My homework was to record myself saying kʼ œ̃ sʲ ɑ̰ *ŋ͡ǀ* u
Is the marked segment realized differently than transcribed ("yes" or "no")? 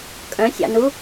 yes